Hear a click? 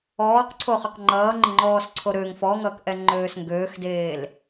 yes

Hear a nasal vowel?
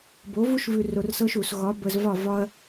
no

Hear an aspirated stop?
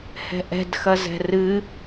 no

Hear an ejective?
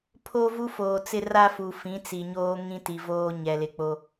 no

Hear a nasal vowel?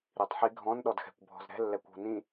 yes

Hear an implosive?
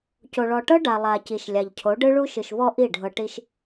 no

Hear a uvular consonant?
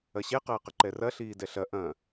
yes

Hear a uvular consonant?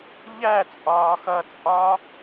no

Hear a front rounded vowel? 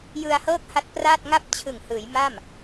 no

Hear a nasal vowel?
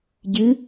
no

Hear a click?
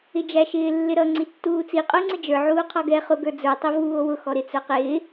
yes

